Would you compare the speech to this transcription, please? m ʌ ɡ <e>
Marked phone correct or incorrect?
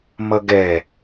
incorrect